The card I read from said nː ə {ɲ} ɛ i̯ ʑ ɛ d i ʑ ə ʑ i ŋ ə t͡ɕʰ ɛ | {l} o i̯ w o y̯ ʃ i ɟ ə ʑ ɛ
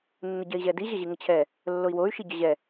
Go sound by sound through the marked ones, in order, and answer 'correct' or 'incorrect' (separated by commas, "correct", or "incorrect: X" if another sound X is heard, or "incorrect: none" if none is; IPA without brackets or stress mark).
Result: incorrect: ɟ, incorrect: lː